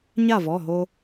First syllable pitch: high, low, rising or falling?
falling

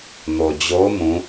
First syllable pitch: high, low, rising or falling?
low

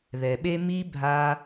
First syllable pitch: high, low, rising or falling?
low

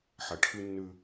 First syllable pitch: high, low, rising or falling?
low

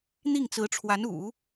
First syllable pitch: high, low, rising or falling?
falling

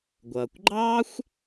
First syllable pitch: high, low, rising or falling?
low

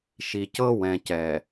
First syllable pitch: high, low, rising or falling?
low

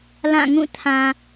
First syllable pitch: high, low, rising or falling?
falling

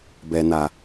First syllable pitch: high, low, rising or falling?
low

